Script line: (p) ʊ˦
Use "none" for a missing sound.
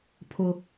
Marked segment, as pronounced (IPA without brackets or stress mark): pʰ